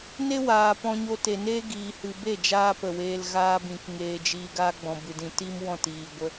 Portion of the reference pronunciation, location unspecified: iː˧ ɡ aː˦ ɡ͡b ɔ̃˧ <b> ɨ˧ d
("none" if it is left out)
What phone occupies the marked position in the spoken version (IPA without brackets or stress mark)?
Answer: b